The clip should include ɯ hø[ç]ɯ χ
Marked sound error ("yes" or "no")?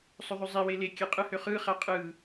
yes